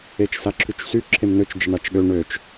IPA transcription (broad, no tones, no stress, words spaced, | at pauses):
et͡ʃsaǁʰyt͡ʃsy ǁʰemnøt͡ʃ d͡ʒəɳat͡ʃɠø ɳøt͡ʃ